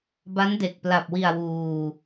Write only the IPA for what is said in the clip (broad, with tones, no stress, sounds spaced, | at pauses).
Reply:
b a˦˥ n d e˨˩ k̚ p l a˨˩ p̚ w i˨˩ a̯ w uː˧